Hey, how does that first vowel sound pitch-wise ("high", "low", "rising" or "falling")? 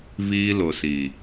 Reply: high